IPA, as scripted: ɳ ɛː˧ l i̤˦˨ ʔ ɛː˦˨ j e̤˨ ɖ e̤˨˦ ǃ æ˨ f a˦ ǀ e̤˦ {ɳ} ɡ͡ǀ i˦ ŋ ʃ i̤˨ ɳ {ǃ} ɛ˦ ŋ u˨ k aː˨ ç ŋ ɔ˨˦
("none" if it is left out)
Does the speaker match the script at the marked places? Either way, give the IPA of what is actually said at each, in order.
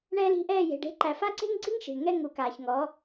ŋ, ŋ

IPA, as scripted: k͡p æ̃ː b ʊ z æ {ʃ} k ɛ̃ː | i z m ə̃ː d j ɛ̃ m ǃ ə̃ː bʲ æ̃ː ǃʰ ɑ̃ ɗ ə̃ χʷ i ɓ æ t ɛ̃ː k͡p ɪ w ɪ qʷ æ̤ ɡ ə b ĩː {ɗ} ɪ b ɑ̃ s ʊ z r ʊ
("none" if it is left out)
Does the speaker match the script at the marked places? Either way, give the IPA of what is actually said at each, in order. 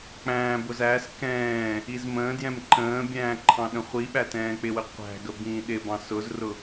s, ɗ

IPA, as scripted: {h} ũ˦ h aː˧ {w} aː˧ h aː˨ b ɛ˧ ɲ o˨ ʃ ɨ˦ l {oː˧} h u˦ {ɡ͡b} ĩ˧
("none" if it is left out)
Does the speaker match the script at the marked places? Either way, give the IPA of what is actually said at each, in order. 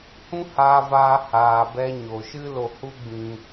h, v, o˧, ɡ͡b

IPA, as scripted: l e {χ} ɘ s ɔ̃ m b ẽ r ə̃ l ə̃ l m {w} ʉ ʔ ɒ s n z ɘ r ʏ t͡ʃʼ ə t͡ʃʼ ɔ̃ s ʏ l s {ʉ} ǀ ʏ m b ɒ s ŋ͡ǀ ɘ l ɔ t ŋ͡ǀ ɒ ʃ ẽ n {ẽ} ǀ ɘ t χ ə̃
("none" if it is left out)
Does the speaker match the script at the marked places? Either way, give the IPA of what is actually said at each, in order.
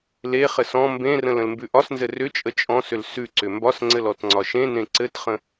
χ, b, ʉ, ẽ

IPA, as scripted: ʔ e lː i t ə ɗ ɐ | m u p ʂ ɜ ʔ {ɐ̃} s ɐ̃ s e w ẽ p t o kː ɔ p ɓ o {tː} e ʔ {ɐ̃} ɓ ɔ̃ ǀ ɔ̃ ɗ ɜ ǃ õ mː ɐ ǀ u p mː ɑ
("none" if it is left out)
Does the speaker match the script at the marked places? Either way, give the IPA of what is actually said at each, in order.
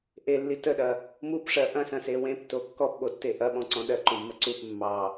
ɐ̃, tː, ɐ

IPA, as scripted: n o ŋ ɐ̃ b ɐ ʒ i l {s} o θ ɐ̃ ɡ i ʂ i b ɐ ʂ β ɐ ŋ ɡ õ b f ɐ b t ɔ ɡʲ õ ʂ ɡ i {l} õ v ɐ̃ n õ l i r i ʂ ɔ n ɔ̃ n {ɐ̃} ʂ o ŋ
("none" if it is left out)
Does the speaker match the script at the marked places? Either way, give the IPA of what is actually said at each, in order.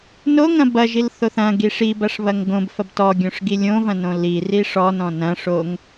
θ, lʲ, ɐ̃

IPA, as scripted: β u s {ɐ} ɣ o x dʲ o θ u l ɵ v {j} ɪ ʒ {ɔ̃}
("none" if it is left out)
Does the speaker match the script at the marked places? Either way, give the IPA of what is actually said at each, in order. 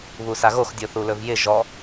a, j, ɔ

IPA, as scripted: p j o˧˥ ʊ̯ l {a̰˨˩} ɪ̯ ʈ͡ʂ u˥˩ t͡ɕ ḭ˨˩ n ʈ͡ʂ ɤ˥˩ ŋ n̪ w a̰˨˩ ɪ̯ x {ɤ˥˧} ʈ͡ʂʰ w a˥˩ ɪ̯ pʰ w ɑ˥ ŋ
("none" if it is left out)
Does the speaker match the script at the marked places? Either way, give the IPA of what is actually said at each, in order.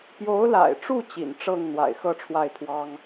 a̰˨˩, ɤ˥˧

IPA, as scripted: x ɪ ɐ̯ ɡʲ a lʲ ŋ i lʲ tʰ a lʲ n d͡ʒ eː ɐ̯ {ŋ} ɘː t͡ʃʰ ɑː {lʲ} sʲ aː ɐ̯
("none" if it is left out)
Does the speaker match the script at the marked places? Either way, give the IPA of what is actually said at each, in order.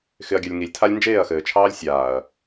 x, lʲ

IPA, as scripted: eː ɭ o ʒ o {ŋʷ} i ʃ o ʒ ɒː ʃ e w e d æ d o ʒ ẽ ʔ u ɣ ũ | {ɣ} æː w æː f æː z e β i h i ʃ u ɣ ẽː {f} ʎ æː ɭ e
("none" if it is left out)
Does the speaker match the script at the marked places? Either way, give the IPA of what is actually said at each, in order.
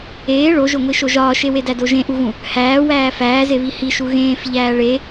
ŋʷ, h, f

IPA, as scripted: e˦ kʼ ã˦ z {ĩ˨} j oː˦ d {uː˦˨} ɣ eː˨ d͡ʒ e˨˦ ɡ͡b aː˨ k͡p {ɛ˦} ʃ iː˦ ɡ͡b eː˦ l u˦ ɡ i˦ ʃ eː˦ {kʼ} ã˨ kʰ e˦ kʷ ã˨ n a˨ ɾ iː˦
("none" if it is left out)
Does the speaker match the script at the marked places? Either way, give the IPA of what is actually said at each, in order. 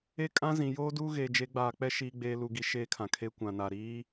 ĩ˨, uː˦, ɛ˦, kʰ

